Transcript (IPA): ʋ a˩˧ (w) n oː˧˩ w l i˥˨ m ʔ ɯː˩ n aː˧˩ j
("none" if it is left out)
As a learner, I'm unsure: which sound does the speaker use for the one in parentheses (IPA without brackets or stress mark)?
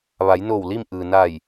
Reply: j